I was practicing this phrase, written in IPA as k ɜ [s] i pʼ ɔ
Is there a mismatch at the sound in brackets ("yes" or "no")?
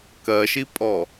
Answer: yes